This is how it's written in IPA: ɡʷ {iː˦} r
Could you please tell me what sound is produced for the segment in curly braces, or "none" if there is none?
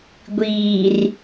iː˨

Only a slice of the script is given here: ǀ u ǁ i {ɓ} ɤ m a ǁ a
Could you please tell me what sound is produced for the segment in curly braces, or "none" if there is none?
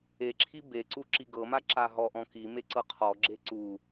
ɡ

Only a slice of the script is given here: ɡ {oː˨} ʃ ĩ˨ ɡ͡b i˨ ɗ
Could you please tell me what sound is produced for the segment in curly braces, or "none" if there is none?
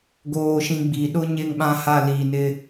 oː˨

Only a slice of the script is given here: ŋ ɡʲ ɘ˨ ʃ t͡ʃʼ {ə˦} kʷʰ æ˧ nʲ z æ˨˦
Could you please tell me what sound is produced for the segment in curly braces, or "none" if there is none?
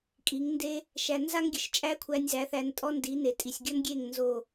æ˦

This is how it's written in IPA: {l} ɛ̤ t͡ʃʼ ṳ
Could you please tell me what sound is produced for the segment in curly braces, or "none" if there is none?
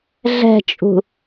ɮ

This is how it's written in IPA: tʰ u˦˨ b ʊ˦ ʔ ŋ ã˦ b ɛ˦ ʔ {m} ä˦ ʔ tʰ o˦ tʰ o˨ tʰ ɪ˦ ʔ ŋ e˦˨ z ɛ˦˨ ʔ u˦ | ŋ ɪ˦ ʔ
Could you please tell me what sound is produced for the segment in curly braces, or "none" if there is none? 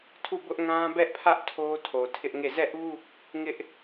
pʰ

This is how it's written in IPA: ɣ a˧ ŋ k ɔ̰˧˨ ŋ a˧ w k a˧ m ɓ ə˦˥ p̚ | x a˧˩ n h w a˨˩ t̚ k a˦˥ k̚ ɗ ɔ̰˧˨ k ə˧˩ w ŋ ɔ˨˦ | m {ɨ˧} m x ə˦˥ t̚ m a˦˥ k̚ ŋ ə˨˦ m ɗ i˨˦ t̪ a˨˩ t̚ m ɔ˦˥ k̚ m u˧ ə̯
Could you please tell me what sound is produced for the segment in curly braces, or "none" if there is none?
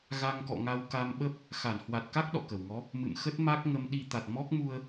ɨ̰˧˨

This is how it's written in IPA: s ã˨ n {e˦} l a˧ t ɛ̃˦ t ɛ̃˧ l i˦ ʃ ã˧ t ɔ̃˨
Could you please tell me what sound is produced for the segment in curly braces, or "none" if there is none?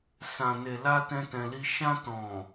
e˨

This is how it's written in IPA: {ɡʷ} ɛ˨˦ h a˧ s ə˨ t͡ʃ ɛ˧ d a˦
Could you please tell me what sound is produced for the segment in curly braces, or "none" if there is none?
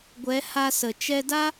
ɡʷ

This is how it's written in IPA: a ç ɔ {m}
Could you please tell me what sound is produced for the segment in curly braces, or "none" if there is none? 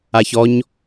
ɲ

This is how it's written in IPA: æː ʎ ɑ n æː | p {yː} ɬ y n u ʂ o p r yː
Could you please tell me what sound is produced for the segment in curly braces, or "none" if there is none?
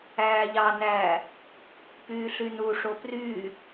yː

